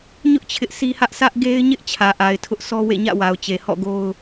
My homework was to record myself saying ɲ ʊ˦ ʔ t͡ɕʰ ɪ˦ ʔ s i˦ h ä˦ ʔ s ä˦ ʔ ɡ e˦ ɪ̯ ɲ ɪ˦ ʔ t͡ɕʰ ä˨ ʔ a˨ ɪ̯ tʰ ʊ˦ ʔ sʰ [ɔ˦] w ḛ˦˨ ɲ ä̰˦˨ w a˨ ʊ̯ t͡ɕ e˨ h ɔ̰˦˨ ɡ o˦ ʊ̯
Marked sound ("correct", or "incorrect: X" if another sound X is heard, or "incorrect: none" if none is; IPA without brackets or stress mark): correct